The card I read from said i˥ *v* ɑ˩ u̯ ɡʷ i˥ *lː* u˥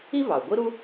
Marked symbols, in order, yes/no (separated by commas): yes, no